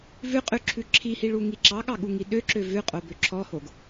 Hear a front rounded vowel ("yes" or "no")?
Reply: yes